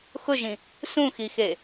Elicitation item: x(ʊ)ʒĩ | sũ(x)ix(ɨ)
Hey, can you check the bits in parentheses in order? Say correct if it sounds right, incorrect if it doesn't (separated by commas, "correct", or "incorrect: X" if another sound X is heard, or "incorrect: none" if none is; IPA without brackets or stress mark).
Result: correct, correct, incorrect: e